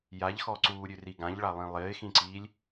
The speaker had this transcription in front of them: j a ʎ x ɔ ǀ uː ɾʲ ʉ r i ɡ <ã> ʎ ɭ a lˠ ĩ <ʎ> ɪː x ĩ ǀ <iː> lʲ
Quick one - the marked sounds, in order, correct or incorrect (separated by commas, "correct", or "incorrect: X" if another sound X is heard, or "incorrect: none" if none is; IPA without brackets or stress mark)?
correct, incorrect: lˠ, correct